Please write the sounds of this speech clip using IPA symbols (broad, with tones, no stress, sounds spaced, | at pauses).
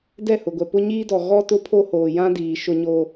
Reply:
d ɛ˦˨ h ʊ˨ ɡʷ ɛ˨ p ʊ˦ ɲ iː˦ d ɔ˨ ɣ ɔ˦ t ʊ˦ pʰ o˦ h oː˨ j ã˦ d iː˨ ʃ ʊ˦ ɲ oː˦